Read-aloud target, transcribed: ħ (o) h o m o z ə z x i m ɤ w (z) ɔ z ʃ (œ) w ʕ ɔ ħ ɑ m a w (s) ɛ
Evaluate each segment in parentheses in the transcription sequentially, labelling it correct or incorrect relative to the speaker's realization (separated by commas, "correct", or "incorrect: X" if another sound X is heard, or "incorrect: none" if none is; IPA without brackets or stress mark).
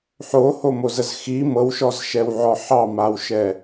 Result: correct, incorrect: ʃ, incorrect: ɛ, incorrect: ʃ